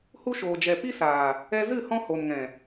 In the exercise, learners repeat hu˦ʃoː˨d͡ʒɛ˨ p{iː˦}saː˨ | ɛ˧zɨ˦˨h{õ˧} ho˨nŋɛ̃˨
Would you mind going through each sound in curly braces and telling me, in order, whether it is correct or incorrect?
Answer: incorrect: i˦, incorrect: ɔ̃˧

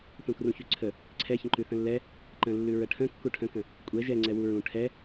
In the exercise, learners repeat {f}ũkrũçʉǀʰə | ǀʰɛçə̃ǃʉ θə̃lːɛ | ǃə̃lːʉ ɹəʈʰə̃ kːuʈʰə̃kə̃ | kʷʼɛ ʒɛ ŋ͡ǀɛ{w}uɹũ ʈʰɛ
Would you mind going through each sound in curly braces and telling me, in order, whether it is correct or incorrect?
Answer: incorrect: θ, correct

